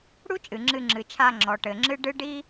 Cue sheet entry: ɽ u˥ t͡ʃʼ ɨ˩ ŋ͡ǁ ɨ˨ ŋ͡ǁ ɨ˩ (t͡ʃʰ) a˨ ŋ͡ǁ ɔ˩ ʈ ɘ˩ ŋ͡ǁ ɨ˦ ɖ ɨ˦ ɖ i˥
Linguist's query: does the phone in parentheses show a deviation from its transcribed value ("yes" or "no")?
no